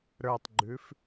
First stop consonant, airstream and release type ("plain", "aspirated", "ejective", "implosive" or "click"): plain